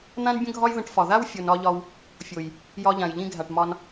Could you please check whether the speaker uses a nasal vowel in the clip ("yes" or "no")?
yes